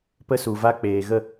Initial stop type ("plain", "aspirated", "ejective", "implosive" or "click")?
plain